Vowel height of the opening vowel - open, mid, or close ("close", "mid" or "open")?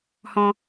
mid